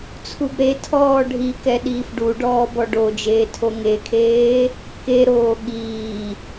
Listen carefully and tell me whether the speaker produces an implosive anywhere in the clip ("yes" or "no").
yes